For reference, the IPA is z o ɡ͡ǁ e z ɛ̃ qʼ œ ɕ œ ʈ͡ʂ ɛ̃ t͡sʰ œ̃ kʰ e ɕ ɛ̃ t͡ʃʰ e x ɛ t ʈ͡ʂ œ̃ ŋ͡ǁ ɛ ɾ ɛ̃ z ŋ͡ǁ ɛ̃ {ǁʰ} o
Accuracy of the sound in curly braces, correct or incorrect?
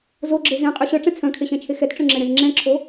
correct